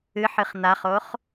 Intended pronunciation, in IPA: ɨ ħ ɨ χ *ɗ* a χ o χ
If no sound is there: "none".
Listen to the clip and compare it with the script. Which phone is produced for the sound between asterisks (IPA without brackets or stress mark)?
n̪